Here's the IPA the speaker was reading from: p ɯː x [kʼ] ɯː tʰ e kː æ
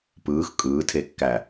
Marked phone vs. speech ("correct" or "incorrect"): correct